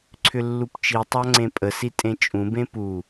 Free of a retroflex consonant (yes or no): yes